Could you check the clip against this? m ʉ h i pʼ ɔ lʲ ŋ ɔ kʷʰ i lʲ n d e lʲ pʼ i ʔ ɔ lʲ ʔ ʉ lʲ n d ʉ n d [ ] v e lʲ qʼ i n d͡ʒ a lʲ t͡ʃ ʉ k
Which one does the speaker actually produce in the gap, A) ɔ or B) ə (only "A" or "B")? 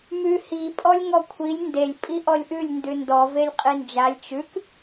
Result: A